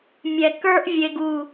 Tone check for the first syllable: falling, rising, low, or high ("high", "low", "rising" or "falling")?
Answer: low